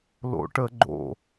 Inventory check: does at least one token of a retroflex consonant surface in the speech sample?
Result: yes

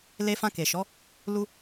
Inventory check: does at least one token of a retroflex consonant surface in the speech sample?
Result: no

